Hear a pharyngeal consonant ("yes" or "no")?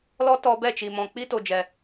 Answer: no